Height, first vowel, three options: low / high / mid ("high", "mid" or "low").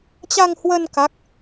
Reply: low